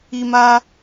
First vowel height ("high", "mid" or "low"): high